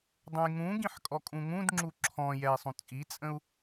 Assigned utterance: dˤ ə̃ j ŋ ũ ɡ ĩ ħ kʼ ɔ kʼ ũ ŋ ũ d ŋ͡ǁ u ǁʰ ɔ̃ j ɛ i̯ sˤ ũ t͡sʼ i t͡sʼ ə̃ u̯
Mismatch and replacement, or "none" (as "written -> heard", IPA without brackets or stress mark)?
none